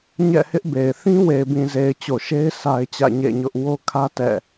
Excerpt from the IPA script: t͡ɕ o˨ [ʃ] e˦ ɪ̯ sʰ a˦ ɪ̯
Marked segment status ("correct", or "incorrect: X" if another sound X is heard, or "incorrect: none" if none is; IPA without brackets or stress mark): correct